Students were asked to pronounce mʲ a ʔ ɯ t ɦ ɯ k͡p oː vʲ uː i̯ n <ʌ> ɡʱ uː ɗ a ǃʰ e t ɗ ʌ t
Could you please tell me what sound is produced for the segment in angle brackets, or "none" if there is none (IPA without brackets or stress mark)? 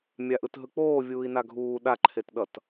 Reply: a